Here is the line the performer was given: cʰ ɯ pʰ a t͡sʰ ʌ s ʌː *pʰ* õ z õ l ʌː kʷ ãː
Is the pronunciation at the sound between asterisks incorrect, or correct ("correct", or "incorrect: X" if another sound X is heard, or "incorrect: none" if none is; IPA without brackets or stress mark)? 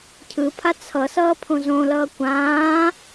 correct